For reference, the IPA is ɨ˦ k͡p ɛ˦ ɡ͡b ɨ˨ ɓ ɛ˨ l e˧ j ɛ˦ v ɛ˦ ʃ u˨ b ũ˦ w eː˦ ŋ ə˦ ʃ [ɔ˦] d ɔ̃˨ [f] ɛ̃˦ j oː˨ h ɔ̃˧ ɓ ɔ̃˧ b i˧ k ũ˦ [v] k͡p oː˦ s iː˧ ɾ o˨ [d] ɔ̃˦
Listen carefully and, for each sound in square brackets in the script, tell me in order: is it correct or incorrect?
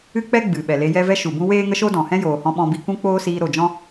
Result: incorrect: o˦, incorrect: h, incorrect: none, incorrect: d͡ʒ

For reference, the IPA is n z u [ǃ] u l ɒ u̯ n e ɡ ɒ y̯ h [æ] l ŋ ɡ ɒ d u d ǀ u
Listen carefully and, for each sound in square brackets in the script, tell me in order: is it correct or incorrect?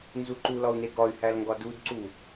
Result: correct, correct

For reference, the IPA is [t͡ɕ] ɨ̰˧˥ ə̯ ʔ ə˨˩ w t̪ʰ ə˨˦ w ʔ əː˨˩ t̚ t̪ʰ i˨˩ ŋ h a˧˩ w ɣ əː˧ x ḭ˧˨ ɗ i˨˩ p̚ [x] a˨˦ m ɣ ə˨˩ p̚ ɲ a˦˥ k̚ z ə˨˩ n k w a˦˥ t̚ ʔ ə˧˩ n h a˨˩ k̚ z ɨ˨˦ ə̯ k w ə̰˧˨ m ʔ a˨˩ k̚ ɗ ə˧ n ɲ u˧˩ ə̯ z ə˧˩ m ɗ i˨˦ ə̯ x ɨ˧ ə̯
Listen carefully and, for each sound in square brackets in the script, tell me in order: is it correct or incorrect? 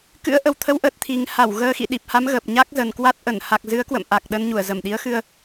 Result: incorrect: k, incorrect: h

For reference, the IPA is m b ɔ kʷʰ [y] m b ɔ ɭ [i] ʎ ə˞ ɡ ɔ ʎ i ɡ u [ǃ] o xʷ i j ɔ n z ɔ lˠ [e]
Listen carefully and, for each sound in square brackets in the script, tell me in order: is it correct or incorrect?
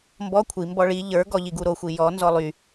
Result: incorrect: i, correct, incorrect: ɾ, incorrect: y

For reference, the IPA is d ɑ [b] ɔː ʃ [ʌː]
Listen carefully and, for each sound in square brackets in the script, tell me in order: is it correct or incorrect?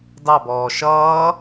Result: correct, correct

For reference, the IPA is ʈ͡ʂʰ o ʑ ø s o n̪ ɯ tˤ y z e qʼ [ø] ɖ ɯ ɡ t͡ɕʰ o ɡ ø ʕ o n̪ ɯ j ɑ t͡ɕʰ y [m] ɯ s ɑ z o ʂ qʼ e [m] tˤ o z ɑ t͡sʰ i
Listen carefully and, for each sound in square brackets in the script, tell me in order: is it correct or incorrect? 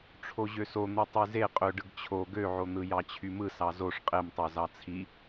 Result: correct, correct, correct

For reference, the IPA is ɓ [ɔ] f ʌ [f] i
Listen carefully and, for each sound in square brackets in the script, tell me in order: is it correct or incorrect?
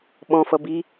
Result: incorrect: ɔ̃, incorrect: b

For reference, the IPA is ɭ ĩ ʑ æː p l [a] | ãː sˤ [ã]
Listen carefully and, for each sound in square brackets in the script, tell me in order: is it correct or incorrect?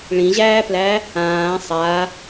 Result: incorrect: æ, incorrect: a

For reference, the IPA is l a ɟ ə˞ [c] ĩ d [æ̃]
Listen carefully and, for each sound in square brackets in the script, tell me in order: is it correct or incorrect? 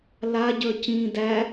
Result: correct, incorrect: æ

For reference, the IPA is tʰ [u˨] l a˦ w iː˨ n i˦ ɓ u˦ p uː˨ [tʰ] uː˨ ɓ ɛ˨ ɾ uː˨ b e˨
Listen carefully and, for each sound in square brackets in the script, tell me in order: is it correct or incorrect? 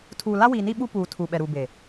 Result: incorrect: uː˨, correct

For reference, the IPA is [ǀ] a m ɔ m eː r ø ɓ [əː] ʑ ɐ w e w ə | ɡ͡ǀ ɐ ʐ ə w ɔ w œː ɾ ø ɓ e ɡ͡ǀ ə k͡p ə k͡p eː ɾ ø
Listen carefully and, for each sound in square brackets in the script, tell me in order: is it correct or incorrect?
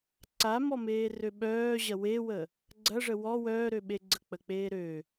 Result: correct, incorrect: œː

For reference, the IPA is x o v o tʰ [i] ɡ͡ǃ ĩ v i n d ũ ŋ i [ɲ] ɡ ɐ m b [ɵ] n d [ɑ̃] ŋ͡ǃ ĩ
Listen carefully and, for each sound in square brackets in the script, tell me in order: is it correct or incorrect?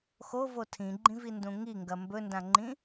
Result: incorrect: ĩ, incorrect: ŋ, correct, incorrect: ã

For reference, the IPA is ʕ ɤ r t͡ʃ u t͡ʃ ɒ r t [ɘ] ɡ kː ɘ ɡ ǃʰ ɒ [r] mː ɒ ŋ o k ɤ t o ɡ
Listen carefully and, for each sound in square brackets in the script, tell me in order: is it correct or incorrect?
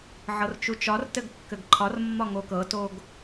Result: correct, correct

